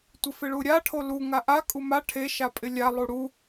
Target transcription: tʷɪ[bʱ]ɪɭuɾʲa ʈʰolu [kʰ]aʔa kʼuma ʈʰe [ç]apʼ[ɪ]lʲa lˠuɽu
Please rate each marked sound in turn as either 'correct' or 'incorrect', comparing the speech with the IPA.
incorrect: f, incorrect: ŋ, incorrect: ʃ, correct

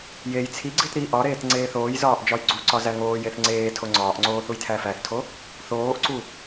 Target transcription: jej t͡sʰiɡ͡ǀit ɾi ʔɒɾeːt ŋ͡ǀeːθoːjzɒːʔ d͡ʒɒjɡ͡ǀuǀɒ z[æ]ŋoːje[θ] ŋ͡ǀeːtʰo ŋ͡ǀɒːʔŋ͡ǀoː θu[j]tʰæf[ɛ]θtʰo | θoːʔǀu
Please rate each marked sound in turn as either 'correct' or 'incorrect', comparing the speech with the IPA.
correct, correct, correct, incorrect: æ

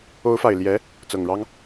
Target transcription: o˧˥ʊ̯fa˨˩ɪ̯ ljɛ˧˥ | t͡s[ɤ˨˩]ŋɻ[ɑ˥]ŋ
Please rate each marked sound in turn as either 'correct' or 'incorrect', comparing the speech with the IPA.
correct, correct

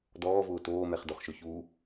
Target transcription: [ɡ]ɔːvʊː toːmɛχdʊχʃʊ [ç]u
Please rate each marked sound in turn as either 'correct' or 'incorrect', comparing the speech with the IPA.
incorrect: d, correct

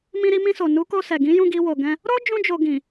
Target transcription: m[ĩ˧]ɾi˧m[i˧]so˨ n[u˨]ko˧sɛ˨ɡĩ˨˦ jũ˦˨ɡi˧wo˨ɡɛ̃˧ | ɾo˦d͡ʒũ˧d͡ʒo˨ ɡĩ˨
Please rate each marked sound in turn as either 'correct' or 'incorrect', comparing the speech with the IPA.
correct, incorrect: ĩ˧, incorrect: u˨˦

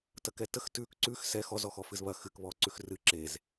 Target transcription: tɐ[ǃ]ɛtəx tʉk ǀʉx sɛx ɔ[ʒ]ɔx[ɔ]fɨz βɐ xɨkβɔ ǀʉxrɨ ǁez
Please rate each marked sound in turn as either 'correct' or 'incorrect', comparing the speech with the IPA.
incorrect: k, incorrect: z, correct

